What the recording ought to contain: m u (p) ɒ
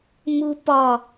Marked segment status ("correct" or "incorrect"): correct